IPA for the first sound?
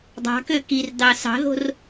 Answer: dˤ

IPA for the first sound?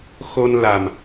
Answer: x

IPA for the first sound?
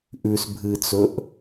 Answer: ʔ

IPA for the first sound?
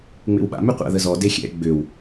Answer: ŋ͡m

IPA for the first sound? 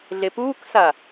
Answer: ɮ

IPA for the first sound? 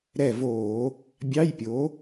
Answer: ɾ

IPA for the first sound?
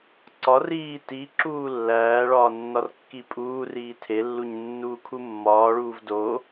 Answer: ǀ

